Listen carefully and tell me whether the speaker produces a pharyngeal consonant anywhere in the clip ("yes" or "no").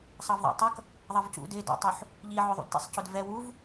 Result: yes